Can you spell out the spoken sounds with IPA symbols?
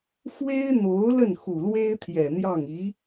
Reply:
f w e˥ ɪ̯ n̪ o˧˥ ʊ̯ l ə˥˩ n x u˨˩ l w e˥ ɪ̯ t̪ʰ j ɛ˨˩ n̪ j ɑ˥˩ ŋ i˧˥

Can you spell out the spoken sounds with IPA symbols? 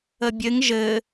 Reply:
ə bʲ ɘ ŋ ʒ ɘ

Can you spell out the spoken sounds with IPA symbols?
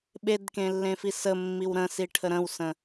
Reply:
ɓ e d k ẽ lː ẽ f i s ə mː i w ɾ ə̃ s i ʈʰ ə ɾ ə̃ w s ə̃

